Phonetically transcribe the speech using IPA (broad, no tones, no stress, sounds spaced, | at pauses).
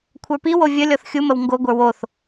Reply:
kʷʰ ə˞ p i w o vʲ ə lʲ ɔ θ xʲ u m ə w ŋ ɡ o ɡʷ ə˞ w o θ